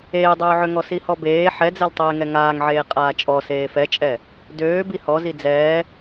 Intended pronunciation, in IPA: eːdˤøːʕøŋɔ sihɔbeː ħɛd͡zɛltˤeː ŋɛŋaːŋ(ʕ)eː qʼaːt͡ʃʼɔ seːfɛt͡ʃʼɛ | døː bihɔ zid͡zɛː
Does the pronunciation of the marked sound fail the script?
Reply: no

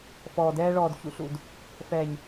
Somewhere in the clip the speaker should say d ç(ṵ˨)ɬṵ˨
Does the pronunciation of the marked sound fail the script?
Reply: no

